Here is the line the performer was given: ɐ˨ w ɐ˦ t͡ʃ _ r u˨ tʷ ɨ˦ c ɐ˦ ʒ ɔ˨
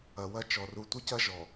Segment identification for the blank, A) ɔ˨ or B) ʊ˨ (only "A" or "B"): A